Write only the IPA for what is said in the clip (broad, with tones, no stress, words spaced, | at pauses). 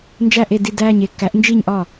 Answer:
nd͡ʒæ˥˧ʔe˥˧ di˥˧dæː˥˧ɲe˥˧ kːæ˨˥ʔnd͡ʒiː˥˧ɲʔɒ˥˩